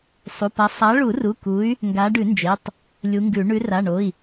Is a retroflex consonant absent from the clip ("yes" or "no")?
no